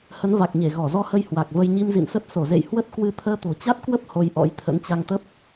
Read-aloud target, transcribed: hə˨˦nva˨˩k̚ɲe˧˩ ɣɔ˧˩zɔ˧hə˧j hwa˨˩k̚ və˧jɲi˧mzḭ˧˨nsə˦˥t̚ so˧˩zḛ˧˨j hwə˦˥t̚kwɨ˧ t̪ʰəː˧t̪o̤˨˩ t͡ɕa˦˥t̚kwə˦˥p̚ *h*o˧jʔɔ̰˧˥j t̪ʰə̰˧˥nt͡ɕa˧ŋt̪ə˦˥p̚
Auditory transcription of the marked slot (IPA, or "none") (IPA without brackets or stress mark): h